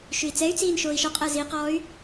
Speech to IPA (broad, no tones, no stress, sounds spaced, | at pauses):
ʃ ʉ i̯ t͡s ɛ y̯ t͡s iː n ʃ oː i̯ ʃ ɔ qʼ əː z i q ɔː y̯